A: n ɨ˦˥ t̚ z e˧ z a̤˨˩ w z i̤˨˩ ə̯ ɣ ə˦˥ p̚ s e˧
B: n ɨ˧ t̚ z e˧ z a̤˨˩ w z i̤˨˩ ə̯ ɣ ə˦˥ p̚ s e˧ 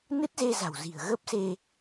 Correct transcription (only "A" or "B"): A